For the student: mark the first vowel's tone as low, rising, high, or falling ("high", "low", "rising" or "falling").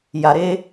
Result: low